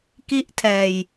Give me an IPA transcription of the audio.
ki˦˥ʔtʰɛː˨˩j

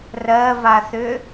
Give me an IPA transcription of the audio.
rɜvaθʏ

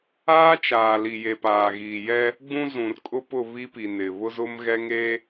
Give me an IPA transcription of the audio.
aː˦t͡ʃaː˨ li˨je˨ paː˨ɣiː˨jɛ˦ | ɡ͡bũ˦zũ˨rkʼʊ˦pʊ˦˨ βi˦pi˨ nɪ˨ βʊ˦zʊ˦mɣɛ˦ ŋe˦

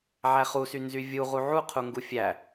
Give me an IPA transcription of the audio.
ʕæχusy nzyvʲu ʁuʕu qʰuŋɡufʲæ

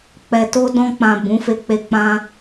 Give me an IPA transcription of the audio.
k͡pɛ˨to˧ dɔ̃˧k͡pã˨ bũ˨˦fe˧k͡pe˧k͡pã˦

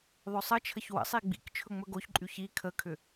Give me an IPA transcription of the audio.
ðˤɵsˤət͡ʃʰəç wə̰sˤi ɡ͡bḭk t͡ʃʰɵŋ͡mɵɡoçǃʼy çi kʰəkʰʏ

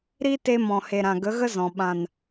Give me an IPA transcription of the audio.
ɾi˦te˧ mɔ̃˨he˨ ɾã˨ ɡə˨˦ɣə˦zɔ̃˨ ɓã˨n

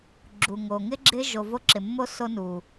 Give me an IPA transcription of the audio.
ɡ͡ǁu˨ŋo˨ ŋɪ˦ɡ͡ǁɪ˦ ʒo˧vo˦ ǁɪ˨mːo˦ so˧nu˨

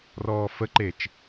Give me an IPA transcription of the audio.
rɔːfəǃet͡ʃ

